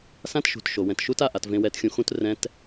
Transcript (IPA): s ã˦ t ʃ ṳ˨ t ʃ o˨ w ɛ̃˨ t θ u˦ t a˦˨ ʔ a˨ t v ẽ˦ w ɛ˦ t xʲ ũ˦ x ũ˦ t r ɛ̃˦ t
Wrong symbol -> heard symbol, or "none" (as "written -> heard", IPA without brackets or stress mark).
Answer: θ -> ʃ